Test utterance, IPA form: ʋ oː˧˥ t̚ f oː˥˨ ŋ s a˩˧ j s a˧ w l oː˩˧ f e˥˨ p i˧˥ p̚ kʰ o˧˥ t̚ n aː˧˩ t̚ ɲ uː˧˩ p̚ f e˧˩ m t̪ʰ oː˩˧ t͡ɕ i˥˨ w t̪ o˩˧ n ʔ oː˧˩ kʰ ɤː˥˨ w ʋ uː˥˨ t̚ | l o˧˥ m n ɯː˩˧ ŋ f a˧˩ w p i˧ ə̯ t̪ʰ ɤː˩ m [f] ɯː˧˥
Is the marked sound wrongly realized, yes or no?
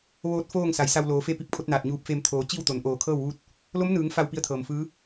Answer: no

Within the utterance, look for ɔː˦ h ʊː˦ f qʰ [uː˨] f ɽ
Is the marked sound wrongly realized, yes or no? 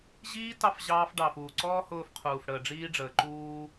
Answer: no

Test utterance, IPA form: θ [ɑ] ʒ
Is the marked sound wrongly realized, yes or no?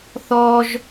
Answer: yes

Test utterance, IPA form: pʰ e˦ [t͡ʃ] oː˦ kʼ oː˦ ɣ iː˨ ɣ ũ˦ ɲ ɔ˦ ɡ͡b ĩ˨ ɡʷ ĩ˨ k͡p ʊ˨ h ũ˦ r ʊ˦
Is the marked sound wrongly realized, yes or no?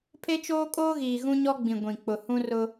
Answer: no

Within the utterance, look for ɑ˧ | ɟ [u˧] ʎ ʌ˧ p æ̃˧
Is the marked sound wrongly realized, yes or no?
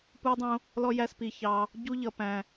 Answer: yes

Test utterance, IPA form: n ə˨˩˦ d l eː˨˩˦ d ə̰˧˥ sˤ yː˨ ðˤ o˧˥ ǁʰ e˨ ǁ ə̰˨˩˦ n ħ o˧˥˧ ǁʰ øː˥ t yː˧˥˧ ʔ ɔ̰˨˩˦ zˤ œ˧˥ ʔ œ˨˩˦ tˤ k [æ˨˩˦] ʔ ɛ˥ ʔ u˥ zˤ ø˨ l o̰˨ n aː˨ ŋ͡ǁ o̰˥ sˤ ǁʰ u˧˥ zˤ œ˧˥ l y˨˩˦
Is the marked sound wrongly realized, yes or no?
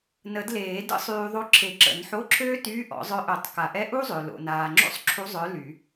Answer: yes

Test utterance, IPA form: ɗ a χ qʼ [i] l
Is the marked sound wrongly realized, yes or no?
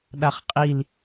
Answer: no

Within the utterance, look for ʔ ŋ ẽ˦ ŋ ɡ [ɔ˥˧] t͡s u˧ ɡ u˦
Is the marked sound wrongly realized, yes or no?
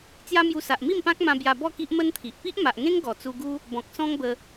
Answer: yes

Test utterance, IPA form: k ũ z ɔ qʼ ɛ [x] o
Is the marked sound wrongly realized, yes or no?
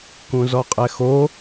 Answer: no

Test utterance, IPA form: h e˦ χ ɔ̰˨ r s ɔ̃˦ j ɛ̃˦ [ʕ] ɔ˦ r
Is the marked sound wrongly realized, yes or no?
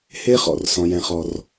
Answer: yes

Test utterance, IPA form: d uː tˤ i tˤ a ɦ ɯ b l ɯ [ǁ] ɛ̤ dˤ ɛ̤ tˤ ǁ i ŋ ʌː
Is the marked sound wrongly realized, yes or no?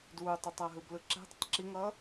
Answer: no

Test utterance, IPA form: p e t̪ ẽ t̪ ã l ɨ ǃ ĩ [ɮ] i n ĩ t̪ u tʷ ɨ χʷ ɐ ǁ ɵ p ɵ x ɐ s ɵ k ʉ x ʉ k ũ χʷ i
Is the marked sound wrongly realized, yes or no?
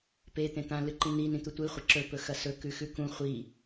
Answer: yes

